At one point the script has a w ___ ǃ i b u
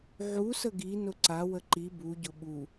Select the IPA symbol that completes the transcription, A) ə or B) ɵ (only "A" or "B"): A